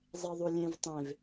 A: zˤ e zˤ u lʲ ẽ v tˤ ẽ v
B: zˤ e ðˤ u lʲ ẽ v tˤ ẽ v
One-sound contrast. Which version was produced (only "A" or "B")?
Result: B